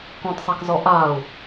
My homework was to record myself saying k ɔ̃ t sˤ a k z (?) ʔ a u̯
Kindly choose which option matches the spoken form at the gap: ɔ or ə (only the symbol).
ɔ